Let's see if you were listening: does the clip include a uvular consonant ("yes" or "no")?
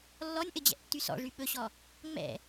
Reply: no